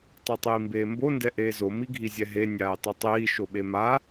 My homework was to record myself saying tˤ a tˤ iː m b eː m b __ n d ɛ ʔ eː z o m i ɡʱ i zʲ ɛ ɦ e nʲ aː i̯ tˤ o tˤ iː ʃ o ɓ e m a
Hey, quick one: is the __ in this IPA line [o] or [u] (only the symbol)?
o